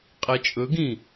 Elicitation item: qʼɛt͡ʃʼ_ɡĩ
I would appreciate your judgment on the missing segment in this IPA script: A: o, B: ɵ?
B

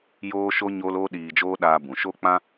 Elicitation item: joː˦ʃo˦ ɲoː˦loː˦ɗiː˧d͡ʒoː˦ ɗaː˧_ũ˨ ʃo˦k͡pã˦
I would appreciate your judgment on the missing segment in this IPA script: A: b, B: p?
A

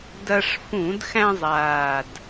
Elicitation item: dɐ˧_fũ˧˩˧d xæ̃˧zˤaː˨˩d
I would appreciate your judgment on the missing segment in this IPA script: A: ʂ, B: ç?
A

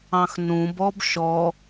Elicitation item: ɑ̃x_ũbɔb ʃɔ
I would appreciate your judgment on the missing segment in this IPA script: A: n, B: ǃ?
A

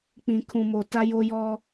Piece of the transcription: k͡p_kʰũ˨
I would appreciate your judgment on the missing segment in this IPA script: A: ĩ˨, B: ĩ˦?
A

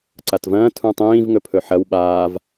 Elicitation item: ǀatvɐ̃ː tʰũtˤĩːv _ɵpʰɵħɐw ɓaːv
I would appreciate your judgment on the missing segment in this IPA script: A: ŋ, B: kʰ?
A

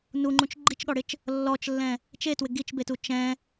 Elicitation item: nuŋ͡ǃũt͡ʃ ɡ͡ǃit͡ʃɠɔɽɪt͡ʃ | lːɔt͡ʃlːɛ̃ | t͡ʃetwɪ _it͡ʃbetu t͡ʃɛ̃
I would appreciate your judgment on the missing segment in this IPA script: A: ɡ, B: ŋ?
A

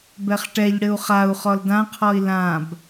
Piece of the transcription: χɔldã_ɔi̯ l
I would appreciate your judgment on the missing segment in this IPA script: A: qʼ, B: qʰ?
B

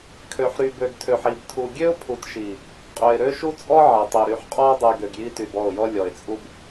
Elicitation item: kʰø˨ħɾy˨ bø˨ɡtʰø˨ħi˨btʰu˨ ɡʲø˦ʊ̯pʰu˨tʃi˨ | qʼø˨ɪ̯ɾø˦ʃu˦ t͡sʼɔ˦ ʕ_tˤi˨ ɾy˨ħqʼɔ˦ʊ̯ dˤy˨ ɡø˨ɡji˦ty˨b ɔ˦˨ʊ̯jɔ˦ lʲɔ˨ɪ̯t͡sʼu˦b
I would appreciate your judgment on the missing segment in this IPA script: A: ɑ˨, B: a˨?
B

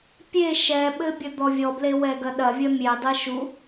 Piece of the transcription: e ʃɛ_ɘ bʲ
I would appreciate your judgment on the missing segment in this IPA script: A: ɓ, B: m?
A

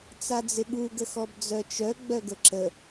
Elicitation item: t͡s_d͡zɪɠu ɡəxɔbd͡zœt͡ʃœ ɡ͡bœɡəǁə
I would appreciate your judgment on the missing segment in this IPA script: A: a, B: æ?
A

